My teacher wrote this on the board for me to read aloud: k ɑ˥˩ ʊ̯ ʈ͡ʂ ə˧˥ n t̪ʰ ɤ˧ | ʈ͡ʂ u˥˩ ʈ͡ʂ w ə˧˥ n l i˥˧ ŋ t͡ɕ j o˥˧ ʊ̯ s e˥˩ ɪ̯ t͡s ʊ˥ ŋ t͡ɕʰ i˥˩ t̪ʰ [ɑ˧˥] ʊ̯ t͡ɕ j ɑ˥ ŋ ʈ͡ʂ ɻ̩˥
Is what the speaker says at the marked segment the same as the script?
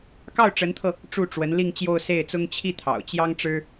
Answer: no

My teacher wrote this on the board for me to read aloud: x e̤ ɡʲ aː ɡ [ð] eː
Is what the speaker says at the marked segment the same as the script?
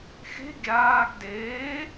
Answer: no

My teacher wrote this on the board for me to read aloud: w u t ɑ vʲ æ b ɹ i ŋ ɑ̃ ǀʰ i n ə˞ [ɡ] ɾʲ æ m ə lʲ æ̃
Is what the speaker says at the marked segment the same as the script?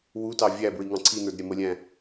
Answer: no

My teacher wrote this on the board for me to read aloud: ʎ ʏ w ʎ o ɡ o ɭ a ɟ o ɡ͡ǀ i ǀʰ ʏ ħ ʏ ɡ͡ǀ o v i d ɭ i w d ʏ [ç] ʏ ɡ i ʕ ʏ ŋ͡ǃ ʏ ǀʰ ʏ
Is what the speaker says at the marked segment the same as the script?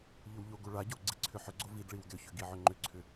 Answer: yes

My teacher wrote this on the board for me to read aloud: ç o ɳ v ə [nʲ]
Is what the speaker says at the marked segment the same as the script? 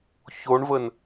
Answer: no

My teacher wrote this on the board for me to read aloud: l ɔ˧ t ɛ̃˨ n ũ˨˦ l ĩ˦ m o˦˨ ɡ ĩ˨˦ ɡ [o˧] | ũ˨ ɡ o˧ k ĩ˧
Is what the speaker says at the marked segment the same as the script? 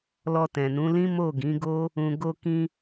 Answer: no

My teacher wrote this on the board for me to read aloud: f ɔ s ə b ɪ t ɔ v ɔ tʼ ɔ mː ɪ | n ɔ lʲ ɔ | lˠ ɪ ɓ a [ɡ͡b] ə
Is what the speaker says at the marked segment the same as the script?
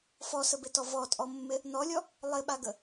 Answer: no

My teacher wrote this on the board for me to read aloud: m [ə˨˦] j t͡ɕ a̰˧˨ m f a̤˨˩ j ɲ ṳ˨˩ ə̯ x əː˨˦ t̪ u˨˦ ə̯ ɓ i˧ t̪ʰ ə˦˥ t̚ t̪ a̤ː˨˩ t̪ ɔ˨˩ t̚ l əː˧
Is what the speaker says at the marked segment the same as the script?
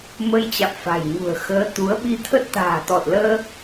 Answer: no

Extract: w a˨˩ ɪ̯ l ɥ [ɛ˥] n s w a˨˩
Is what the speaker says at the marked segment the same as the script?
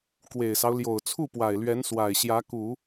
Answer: no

